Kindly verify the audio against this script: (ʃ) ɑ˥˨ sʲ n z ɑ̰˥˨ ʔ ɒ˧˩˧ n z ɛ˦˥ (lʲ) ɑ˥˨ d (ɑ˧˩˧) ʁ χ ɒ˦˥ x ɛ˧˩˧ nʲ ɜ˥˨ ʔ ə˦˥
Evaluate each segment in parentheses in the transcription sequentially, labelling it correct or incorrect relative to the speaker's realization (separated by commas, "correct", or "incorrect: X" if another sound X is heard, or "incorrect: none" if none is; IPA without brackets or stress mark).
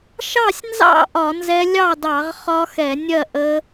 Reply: correct, correct, correct